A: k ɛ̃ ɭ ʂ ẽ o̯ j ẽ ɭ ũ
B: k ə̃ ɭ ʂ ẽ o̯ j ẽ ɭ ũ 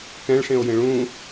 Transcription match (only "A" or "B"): A